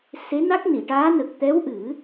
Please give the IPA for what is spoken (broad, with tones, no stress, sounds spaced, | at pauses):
s e˧˥ n a˦˥ k̚ n i˨˩˨ ʈ aː˧˥ n ə˨˩ k̚ t̪ ɛ˧˥ w ʔ ɨ˨˩˦